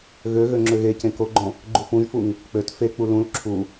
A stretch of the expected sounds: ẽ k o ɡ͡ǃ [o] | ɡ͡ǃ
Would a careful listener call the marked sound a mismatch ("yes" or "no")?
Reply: yes